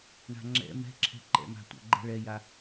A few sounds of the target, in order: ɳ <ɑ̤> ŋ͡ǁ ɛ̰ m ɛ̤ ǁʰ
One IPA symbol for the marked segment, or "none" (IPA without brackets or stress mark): a̤